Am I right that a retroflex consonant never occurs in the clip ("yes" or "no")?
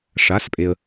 no